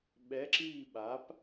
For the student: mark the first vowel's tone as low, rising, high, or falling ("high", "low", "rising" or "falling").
rising